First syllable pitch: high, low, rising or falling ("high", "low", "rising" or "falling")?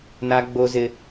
high